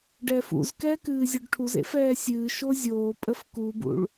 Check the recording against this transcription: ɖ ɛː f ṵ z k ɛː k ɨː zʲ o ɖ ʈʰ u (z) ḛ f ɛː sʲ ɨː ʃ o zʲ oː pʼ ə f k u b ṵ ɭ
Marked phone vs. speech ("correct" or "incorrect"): correct